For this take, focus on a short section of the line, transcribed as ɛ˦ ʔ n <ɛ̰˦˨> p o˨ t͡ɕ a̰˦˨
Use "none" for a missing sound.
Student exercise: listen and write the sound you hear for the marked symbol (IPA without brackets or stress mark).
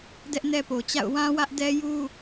ɛ˦